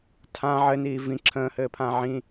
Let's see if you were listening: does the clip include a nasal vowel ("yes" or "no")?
yes